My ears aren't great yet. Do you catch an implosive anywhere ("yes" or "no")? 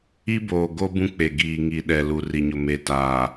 yes